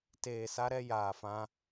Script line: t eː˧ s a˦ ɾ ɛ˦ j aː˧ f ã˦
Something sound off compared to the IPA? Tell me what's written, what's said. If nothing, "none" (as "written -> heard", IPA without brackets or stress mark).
none